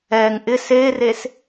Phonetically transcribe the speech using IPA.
ɛŋ ʔɪs eres

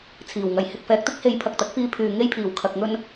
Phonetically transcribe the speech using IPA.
t͡sʰiː˨˩wŋɐ˨˩j hɪ˨k̚fɛː˨k̚t̪ɪ˥k̚he˨˥j pʰɐ˨k̚t̪ɐ˨˥k̚fiː˧ pʰyː˨ ŋe˧jpʰiː˨˩w kʰɐ˨k̚ŋɵ˧n

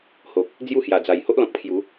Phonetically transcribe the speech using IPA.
ho˨k̚ | d͡zju˥˧hja˨˩d͡za˨˩j ho˦ʔlɔ̃˨k̚ pʰju˨˦

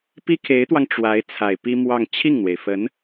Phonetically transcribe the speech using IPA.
pi˥kʰe˧˥ɪ̯t̪wɑ˧ŋ ʈ͡ʂwa˧˥ɪ̯ t͡sʰa˨˩ɪ̯pi˥mwɑ˥˧ŋ t͡ɕʰi˥˩ŋn̪we˩ɪ̯fə˧˥n

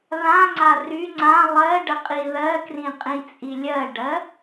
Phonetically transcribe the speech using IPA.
ðãŋ͡ǀa ry ŋ͡ǀã lˠɜɖəqʼi ðɜkrĩqʼĩt͡sʼi lʲɜɖɜ

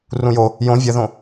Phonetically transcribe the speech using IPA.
rũjo | jõ vʲəðõ

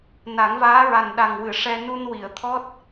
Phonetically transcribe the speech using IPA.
na˨˩˦ŋvaː˧˥ɹa˨˩n ɗa˨˩ŋwɨ˨˩˨ʂɛ˧ nu˧nwi˨˩˨ə̯t̪ʰɔ˦˥t̚

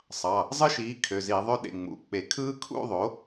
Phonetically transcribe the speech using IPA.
sˤɑ˩˧˩ | zˤɯ˦˥ʃiː˩˥ kʰø˩˧˩zi˧˩˧ðˤø˥˧ ɗḛ˩˧˩ ŋ͡mṵ˩˧˩k͡pe˧˩˧ kʰɯː˦˥kʰṵ˥˧ðˤo˩˥

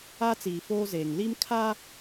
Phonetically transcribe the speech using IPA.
aː˦ t͡siː˨ foː˦zeː˨ŋ li˦mkʰaː˦

